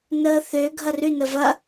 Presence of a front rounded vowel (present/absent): present